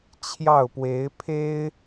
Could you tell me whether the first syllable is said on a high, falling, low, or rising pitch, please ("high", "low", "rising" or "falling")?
falling